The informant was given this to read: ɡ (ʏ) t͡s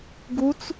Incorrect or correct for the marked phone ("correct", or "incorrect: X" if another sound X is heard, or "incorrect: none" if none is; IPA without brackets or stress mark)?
incorrect: u